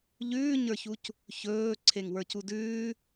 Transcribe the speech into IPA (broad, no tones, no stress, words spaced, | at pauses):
ʎʉːɲə˞çuc | çɵː ǀʰeŋwə˞cudʉː